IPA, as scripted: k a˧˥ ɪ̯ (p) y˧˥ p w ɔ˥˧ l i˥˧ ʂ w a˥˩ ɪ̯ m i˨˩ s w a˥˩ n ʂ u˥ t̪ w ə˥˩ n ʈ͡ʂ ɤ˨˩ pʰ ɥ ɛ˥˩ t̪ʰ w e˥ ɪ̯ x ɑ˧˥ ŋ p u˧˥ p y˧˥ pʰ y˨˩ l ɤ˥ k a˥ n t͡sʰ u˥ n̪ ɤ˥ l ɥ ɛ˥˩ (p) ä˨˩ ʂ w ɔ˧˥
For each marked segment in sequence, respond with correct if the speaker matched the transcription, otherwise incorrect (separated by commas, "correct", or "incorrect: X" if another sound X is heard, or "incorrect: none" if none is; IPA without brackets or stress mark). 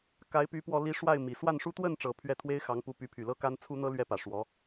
correct, correct